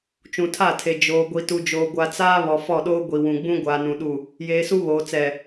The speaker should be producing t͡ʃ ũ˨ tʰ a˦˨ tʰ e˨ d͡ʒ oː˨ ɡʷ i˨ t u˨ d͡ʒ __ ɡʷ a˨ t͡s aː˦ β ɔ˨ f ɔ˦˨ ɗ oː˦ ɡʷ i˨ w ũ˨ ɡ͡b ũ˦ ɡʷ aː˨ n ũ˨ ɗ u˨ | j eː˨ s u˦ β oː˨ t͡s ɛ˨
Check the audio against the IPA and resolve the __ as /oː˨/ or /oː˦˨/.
oː˨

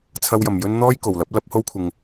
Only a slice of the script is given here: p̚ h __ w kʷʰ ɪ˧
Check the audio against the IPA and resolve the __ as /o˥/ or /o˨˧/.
o˥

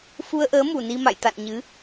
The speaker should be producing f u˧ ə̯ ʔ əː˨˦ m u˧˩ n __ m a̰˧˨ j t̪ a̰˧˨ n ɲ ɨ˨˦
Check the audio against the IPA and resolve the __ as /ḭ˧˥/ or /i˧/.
i˧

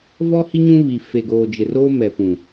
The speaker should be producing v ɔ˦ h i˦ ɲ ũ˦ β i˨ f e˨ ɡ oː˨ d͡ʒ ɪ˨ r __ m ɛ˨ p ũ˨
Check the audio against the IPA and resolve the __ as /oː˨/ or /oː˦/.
oː˦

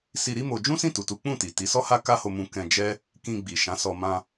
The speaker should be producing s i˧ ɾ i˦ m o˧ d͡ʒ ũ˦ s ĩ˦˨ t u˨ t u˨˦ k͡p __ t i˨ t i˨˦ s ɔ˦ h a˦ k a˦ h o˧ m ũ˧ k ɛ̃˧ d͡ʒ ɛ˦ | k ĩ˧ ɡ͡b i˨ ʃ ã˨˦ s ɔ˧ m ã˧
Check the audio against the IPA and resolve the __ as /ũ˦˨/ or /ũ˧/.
ũ˦˨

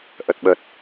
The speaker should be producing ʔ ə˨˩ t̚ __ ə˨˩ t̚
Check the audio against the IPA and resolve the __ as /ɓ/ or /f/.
ɓ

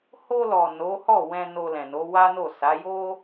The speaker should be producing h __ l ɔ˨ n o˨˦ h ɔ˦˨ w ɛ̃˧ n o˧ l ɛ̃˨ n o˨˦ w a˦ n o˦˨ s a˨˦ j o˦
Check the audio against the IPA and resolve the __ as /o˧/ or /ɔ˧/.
o˧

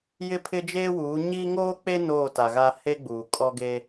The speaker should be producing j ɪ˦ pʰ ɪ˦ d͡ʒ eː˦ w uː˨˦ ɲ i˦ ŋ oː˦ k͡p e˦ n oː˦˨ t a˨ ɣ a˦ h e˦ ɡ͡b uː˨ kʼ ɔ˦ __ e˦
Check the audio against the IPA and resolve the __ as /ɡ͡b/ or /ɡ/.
ɡ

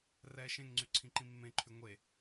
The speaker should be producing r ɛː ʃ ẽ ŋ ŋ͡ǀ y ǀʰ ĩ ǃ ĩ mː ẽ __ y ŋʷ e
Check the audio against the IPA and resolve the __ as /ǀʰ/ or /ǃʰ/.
ǃʰ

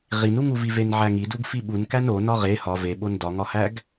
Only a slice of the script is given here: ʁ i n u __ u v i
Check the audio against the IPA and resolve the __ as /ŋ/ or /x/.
ŋ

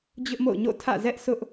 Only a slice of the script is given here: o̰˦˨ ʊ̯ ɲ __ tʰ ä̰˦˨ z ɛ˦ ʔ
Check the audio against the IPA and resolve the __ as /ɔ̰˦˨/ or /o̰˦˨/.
o̰˦˨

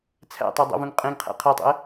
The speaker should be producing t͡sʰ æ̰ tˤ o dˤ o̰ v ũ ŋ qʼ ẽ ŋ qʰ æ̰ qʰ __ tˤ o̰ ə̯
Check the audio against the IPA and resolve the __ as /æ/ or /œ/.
æ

